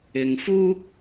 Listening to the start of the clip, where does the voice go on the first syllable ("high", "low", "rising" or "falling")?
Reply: low